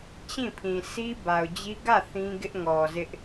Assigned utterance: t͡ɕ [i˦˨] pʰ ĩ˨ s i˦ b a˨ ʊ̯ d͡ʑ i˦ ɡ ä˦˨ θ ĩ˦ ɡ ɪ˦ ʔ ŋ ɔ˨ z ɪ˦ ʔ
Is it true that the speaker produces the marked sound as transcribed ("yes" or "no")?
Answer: no